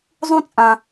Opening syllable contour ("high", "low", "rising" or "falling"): high